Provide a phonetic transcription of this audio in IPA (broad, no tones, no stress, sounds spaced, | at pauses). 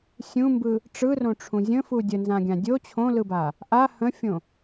sʲ ũ m b ɯ | ʈ͡ʂ ɯ r õ ʈ͡ʂʰ ũ zʲ ə̃ f u dʲ ə n z ã ɡʲ ã dʲ o t͡ɕʰ õ l ɯ b a | ʔ a h ə̃ fʲ õ